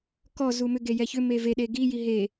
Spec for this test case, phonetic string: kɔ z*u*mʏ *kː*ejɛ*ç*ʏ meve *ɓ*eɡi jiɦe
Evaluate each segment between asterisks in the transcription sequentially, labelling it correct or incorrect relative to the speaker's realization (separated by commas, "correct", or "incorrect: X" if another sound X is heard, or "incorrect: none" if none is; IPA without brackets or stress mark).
correct, incorrect: ɡ, correct, incorrect: ɗ